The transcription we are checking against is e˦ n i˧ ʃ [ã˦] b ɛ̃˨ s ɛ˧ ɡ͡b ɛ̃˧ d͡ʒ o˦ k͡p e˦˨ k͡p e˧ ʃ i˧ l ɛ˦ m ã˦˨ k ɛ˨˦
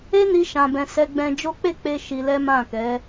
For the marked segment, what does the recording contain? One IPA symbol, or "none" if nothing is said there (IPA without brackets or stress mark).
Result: ã˨